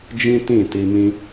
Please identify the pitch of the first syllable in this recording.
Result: high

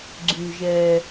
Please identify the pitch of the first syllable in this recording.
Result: low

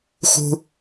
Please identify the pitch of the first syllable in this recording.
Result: low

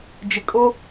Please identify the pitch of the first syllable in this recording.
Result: low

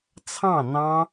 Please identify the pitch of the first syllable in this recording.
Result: falling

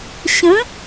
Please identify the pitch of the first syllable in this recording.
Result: rising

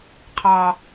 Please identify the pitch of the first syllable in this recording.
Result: low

